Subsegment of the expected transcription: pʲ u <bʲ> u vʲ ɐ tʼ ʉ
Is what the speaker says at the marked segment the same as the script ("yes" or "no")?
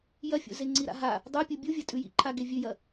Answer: yes